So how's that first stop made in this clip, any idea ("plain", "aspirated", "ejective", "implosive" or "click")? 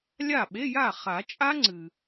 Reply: implosive